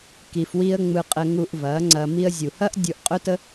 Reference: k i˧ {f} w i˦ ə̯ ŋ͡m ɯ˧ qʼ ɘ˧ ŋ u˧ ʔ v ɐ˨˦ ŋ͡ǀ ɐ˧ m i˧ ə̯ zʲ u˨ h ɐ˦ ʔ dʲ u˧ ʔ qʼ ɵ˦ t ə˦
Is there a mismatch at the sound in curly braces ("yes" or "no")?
no